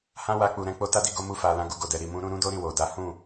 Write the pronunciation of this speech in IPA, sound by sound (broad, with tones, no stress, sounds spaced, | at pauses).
h ã˦ w a˧ k͡p u˨ ɾ ɛ̃˨˦ k͡p o˧ t a˦ d i˧ ɡ o˧ m u˧ f a˨ l ã˨˦ ɡ u˧ ɡ o˨ d ɛ˨ ɾ i˨ m ũ˧ ɾ ũ˦ ɾ ũ˦ d o˦ ɾ ĩ˦˨ w o˨ d a˨˦ h ũ˦˨